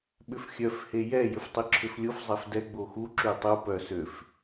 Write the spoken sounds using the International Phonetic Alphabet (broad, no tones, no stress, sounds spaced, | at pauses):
ɓ ʏ f xʲ œ f h e j ɛ j ʏ f tˤ i ǁʰ ʏ f lʲ o f zˤ ɛ f d ɛ ɡ͡b o x u ǁ y tˤ u p œ s ø f